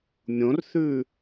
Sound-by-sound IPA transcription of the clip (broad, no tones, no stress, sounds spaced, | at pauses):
mʲ õ r θ ʉ